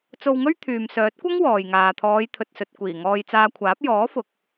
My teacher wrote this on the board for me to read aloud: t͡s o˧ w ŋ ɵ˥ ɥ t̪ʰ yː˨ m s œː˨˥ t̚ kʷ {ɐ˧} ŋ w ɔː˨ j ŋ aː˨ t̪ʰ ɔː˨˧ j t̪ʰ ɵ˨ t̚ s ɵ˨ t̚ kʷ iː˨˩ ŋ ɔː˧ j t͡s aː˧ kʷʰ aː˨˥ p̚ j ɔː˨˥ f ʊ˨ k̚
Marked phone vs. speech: incorrect: ɐ˥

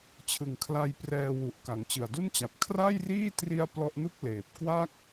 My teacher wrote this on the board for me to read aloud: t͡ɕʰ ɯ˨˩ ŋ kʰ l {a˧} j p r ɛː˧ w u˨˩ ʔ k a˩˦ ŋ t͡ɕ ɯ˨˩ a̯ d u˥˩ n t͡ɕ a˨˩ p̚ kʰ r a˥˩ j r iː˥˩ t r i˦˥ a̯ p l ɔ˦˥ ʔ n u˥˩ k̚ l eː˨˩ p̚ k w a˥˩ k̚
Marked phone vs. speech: correct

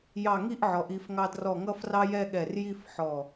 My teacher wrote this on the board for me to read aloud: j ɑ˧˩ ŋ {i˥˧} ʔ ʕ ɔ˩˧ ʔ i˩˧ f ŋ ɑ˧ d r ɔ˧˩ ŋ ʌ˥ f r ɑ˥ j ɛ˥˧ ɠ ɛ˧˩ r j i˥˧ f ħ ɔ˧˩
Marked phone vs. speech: correct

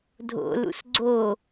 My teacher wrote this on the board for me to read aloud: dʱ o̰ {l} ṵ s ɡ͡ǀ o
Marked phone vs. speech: correct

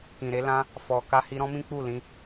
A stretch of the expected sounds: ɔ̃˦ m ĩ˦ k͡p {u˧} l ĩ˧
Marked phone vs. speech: incorrect: u˦˨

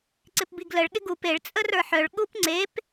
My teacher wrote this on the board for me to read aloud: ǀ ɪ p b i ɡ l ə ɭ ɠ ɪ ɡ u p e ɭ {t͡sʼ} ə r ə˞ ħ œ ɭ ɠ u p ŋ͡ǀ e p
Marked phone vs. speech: correct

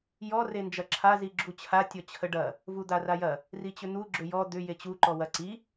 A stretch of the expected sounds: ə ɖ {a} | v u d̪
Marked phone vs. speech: incorrect: ɐ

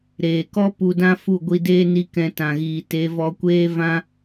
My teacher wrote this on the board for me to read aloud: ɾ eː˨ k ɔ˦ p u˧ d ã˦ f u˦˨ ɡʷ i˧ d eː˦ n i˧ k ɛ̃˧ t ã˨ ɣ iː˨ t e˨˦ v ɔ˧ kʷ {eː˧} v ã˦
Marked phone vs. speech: incorrect: eː˦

